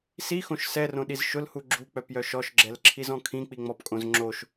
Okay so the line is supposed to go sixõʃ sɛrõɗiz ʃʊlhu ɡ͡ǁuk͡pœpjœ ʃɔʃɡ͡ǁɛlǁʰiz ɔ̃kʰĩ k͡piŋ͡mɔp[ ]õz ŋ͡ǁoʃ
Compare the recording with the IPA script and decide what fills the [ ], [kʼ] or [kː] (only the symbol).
kʼ